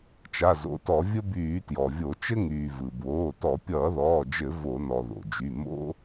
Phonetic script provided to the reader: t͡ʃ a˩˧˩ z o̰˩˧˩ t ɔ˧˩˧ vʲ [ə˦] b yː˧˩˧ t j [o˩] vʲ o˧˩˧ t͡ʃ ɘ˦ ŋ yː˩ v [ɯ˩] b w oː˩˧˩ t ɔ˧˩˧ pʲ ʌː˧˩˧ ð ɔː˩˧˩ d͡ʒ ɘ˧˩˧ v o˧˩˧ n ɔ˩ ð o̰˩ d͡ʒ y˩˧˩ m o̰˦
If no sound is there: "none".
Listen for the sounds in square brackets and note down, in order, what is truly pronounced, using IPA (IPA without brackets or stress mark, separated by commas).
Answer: ə˦, ɔ˩, ɯ˩